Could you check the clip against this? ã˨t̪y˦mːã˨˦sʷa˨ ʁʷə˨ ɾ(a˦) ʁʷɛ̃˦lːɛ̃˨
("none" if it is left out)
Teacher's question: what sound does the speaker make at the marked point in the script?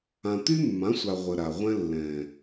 a˨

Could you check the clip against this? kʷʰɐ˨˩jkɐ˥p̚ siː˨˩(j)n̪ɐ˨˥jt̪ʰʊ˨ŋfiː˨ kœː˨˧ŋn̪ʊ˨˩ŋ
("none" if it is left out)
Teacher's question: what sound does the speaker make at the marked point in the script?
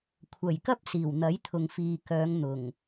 w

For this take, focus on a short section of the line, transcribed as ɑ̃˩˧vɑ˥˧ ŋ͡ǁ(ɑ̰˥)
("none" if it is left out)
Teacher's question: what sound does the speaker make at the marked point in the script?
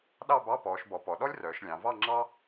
ɑ˥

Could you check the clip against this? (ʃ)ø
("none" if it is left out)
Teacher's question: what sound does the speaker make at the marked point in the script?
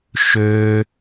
ʃ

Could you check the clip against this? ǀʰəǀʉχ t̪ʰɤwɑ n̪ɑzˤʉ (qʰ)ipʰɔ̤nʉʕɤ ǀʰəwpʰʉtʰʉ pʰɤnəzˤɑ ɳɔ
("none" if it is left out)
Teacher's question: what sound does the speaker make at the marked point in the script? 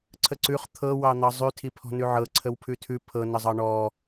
tʰ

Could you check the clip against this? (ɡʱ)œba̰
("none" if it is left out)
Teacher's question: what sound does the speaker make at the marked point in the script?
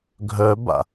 ɡʱ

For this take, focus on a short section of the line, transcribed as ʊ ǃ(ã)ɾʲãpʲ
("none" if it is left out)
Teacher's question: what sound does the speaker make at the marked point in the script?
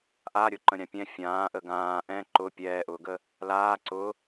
ə̃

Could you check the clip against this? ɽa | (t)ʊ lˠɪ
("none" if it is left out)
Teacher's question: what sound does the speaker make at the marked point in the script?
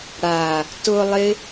t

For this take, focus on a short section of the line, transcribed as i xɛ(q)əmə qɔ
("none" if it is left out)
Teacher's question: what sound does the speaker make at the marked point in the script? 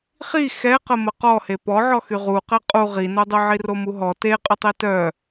q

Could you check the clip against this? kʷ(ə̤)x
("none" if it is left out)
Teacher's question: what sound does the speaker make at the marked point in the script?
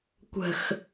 ə̤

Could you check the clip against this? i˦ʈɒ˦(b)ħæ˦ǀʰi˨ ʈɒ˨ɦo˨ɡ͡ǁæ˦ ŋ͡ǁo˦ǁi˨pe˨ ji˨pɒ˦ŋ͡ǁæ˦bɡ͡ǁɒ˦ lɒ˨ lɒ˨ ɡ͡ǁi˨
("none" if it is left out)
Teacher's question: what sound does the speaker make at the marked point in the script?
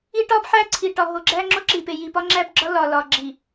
b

